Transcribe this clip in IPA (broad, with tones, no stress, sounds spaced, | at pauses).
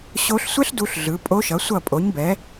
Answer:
ɕ o˦˥ ɬ sʷ ɛ˦˥ ɬ d u˦˥ ɬ ɮ ɯ˨˥ pʼ o˦˥ ʃ ʌ˨˥ sʷ ʌ˥˨ pʼ o˨˥ ɲ b ɛ˨˥